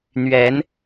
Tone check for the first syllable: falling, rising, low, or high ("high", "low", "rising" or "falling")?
rising